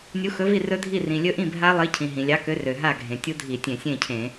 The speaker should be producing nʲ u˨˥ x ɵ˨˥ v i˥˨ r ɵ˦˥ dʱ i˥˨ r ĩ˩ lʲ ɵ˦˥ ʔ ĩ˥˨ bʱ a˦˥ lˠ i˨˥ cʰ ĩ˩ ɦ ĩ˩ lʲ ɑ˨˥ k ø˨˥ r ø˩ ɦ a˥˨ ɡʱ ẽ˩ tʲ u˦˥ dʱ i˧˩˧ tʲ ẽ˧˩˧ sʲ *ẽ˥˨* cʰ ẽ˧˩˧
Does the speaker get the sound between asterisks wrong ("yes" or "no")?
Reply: no